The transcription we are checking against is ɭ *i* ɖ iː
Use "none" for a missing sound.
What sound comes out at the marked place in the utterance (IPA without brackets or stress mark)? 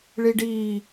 i